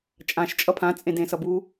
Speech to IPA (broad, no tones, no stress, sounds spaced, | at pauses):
t͡ʃʼ ã ʃ t͡ʃʼ ʌ pʰ ã t͡sʼ ẽ d ẽ s ʌ b u